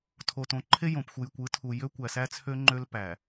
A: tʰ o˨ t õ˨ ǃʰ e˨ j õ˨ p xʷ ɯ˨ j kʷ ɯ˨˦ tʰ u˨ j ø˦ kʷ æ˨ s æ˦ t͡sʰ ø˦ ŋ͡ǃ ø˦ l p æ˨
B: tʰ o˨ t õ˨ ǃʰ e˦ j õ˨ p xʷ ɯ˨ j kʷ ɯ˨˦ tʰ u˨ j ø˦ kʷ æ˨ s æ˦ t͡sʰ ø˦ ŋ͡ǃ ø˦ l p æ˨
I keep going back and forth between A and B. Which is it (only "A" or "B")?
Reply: B